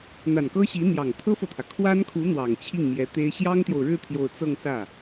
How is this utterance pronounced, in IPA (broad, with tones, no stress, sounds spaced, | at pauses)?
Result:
n̪ a˨˩ n k ɤ˥ ɕ i˧˥ n̪ j ɑ˨˩ ŋ t̪ʰ ɤ˥ f ɤ˨ t̪ʰ ä˩ kʰ w a˥ n kʰ u˧˥ n̪ w ɑ˨˩ ŋ t͡ɕʰ i˥˩ ŋ m j ɛ˧˥ t̪ e˥ ɪ̯ ɕ j ɑ˥ ŋ t̪ j o˨ ʊ̯ ɻ ɻ̩˥˧ t̪ʰ j o˥˧ ʊ̯ t͡s ɤ˥˧ ŋ s ä˥˩